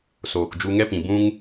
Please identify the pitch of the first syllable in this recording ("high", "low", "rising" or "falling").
low